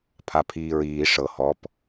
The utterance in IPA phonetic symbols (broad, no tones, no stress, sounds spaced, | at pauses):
pʰ a pʰ iː ɹ iː ʂ ɤ h ɔ p